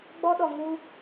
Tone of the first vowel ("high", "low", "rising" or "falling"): high